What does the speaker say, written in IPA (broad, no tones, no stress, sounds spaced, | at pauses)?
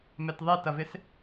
m ɛ t ðˤ e t ɐ v ɪ s